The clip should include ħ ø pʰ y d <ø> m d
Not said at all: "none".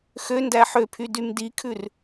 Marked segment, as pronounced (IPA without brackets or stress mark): y